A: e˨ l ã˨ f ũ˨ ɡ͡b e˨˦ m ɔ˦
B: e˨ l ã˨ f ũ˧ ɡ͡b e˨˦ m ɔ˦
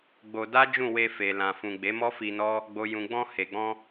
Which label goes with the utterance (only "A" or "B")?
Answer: A